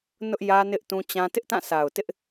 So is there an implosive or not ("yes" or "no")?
no